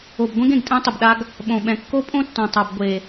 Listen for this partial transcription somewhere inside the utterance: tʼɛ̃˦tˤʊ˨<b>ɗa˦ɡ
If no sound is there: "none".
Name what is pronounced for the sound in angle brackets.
b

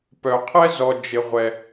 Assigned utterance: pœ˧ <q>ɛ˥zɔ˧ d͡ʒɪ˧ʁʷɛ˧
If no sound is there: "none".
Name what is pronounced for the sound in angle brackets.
qʰ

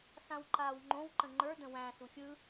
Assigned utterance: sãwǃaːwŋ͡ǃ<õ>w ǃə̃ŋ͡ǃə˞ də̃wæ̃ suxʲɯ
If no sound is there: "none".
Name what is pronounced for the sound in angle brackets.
õ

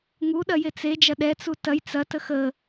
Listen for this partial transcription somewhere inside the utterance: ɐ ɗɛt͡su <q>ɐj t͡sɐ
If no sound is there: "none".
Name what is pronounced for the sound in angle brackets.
t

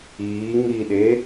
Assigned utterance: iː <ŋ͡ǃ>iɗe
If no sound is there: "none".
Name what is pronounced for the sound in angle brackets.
ŋ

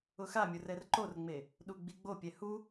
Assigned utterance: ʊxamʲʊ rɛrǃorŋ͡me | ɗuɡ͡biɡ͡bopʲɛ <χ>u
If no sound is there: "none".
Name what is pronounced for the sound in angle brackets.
h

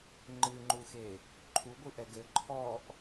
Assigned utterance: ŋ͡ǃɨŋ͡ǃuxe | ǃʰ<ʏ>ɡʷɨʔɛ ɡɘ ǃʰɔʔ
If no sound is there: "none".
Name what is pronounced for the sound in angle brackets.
u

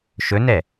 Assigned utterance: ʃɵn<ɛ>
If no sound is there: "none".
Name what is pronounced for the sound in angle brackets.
ɛ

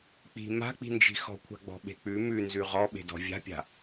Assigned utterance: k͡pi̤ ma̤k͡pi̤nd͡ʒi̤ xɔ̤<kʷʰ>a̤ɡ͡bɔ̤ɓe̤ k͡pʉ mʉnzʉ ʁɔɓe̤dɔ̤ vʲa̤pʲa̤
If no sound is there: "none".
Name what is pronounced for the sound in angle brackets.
kʷʰ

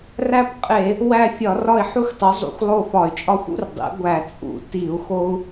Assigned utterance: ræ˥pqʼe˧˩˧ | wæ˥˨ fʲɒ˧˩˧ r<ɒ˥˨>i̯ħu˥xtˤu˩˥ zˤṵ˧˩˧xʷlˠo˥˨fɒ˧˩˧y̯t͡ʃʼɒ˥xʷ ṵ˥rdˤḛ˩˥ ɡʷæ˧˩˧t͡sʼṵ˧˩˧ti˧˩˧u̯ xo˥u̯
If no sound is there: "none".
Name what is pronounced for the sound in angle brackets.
ɒ˥˨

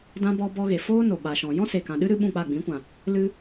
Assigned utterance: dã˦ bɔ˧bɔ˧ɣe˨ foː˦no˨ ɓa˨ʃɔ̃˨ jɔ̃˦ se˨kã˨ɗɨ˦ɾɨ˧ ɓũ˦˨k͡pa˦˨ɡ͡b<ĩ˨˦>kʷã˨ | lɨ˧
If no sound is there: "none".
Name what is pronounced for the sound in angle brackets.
ĩ˨˦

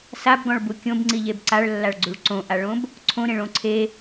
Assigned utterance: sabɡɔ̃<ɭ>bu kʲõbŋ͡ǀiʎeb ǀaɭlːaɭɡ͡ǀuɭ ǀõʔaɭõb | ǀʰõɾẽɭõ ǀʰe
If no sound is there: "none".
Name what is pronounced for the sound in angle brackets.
ɭ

